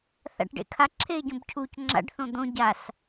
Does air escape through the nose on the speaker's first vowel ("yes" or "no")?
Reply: no